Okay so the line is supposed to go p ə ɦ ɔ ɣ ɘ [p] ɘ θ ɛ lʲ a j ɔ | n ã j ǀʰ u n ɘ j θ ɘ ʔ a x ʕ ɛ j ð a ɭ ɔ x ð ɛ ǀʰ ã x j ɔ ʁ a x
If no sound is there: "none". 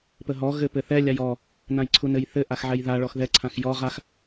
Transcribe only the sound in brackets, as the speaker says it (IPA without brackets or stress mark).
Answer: p